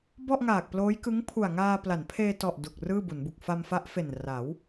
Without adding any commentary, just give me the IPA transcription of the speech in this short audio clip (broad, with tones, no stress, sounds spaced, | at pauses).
b ɔ˥˩ ʔ ŋ aː˨˩ k̚ p l oː˦˥ j k ɯ˦˥ ŋ pʰ u˨˩ a̯ ŋ aː˧ p l a˩˦ n pʰ eː˧ t ɔ˨˩ ʔ d u˨˩ k̚ r ɯː˥˩ b u˩˦ n b u˨˩ k̚ f a˧ m f a˦˥ ʔ f e˨˩ n r a˩˦ w